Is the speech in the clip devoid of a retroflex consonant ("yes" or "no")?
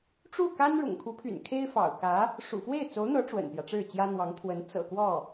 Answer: no